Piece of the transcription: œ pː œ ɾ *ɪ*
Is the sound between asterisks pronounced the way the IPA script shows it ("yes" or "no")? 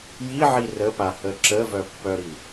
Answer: no